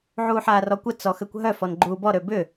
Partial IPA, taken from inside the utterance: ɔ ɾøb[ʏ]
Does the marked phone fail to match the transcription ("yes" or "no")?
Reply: no